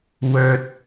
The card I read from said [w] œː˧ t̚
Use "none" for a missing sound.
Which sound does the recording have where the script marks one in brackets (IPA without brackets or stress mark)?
w